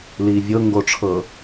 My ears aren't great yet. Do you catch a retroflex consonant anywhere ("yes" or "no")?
yes